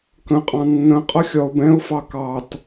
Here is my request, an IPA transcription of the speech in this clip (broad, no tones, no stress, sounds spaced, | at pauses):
k ə̃ qʼ ɑ̃ nː ə̃ qʼ ʌ xʲ ɒ ʊ̯ b ɛ̃ ʊ̯ f ɑ k ɑ t